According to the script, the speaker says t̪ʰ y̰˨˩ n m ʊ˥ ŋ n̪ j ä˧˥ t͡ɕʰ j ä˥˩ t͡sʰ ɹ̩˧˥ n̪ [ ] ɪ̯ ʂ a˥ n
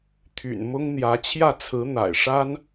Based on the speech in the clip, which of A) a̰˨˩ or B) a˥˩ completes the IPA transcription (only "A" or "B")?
A